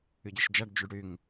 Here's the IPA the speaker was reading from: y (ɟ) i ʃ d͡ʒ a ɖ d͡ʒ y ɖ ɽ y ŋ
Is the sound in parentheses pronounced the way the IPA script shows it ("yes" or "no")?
yes